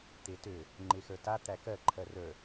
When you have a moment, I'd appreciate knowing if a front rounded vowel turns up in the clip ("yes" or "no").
yes